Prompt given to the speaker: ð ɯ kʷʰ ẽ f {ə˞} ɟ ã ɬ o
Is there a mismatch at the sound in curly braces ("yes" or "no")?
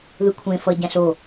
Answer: yes